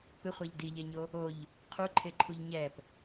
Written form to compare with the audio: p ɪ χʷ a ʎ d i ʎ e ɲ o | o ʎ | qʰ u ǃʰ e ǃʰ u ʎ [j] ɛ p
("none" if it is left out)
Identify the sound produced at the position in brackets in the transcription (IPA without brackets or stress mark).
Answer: ɲ